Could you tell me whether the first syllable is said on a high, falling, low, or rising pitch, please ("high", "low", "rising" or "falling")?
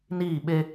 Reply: falling